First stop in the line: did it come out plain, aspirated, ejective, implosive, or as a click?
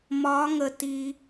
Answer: plain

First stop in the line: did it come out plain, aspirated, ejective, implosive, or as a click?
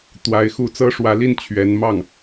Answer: plain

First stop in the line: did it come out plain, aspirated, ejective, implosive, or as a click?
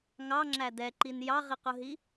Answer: click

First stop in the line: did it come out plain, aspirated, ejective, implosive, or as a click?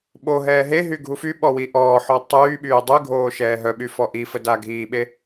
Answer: implosive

